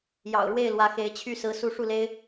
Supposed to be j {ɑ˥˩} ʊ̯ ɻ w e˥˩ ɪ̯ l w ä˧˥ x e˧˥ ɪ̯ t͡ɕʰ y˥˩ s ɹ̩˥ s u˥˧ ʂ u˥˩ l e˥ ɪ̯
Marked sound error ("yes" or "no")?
yes